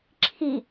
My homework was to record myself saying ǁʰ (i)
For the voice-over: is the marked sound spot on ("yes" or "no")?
yes